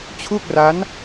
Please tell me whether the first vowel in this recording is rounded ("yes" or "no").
yes